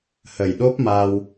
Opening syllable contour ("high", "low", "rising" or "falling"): low